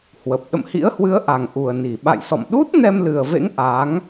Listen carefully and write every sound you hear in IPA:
hwə˨˩p̚ ɗə̰˧˨mhḭ˧˥ə̯hwɨ˨˦ə̯ ʔa˨˩ŋʔu˨˩ə̯ni˧˩ ɓa̰˧˨jsɔ̰˧˨mɗu˦˥t̚ nɛ˧mlɨ˨˩ə̯vḛ˧˥ŋ ʔa˨˦ŋ

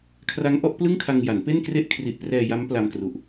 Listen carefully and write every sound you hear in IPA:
kʰra˦˥ŋʔɔ˥˩ʔ plɯ˥˩ŋkʰa˧ŋ ja˩˦npe˥˩n kre˥˩ʔ kʰri˨˩ʔprɛː˧ja˦˥m pla˧mkru˨˩ʔ

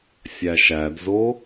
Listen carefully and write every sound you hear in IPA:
sʲæʃædzo

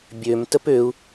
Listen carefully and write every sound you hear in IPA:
bʲøm təpøu̯

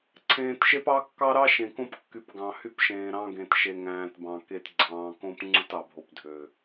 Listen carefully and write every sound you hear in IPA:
ǀʰẽː˨tʃe˦pɑ˦ kːɑ˦ɾɑ˦ ʃẽ˨kõ˦pkːy˨p ɡɑ̃˨hy˦pʃẽː˨ɾɑ̃˦ ɡẽ˨tʃe˨ŋæ̃ː˨t bɑ̃˨ ke˨t ɡ͡ǀɑ̃ː˨kõ˦p ŋ͡ǀu˦tɑ˨bʱo˨p dʱø˨

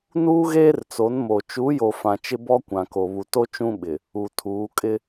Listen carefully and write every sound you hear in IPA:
nuː˦ɣeː˦rt͡so˨˦nmo˨ t͡ʃu˨˦jo˨ fã˨t͡ʃɪ˦bɔ˦ kʷã˨ko˨ βu˨to˦ t͡ʃũ˦ɓɪ˨ | u˨tʰuː˨˦ kʼɪ˦

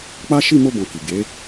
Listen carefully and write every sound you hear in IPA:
k͡pa˦ ʃi˦˨mo˧ bɔ̃˨ ki˨ ɡe˨˦

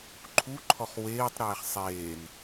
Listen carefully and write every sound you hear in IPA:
ǃʰuǃʰɔχ weːtˤɾɛːχ sˤeːn

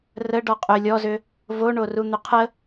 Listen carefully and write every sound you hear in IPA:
rə ɖɔqʼʏ lʲɔzʏ | voɳoru n̪ʏqʰə

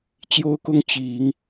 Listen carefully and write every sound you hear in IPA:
t͡ɕjo˥ʊ̯kʊ˥ŋ t͡ɕi˨˩˦ŋ

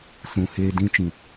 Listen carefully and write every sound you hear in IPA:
sũ˨heː˧dĩ˧t͡ʃĩ˨

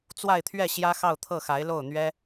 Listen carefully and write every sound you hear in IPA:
t͡swa˥˧ɪ̯t̪ʰɥɛ˥˩ ɕjä˥xɑ˥˧ʊ̯t̪ʰɤ˥˩xa˧˥ɪ̯ lo˥˩ʊ̯n̪ɥɛ˥

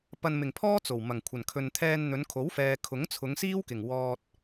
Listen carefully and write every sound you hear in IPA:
pɐ˨nmɪ˨˩ŋpʰɔː˥ t͡so˨˩wmɐ˨˩ŋ kʷʰɐ˨˩nkʰɵ˨n t̪ʰɛː˧nn̪ɵ˨˧nkʰo˨˥w fɛː˧ kʰʊ˨˥ŋt͡sʰʊ˨˧ŋsiː˥wkɪ˨˩ŋ wɔː˧t̚

